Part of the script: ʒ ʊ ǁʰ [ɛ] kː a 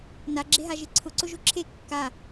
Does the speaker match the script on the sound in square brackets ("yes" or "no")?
no